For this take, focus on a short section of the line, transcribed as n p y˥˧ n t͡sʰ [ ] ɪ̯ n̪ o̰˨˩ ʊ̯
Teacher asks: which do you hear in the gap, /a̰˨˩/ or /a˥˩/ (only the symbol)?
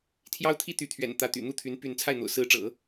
a˥˩